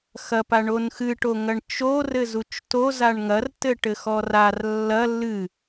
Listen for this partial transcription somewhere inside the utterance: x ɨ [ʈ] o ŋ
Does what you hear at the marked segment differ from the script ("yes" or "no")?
no